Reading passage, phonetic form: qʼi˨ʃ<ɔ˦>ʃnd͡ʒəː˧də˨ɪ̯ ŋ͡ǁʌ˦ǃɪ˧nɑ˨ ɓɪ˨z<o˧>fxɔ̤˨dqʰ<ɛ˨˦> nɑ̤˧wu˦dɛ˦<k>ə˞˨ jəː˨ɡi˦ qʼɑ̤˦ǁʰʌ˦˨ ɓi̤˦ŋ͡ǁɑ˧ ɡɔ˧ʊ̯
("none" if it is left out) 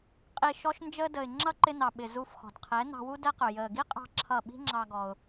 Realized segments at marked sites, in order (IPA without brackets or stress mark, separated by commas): ɔ˧, u˧, ɛ˨˦, q